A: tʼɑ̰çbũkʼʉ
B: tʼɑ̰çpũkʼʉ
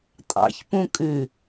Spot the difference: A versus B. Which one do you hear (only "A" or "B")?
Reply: B